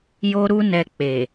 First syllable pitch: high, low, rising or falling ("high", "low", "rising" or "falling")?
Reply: high